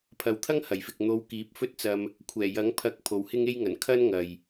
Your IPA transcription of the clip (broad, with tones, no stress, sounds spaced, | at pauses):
pʰ ɐ˨ w t̪ʰ ɐ˥ ŋ h ɐ˨˩ j f ɪ˨ k̚ n̪ o˧ w k iː˨˥ p̚ f ɵ˥ t̚ t͡s ɐ˧ m | kʷʰ ɛː˨˩ j ɐ˨˥ ŋ pʰ ɐ˨˥ k̚ pʰ o˨ w h ɪ˥ ŋ e˥ j ŋ ɐ˨˩ n kʰ ɐ˥ n ŋ ɐ˨ j